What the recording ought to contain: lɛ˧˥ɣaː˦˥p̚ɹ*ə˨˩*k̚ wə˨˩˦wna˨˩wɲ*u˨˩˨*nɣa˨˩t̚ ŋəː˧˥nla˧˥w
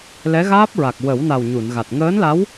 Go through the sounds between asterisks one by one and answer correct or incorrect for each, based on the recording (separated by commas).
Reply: incorrect, correct